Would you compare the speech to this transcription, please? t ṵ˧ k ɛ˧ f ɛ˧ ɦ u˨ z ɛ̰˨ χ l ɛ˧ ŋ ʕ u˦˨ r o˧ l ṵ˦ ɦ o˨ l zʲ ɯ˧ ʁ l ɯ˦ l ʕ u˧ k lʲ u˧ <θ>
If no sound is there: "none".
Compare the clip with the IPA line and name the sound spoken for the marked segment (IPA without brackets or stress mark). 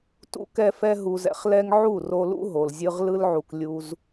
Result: z